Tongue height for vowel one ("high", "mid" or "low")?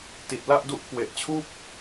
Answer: high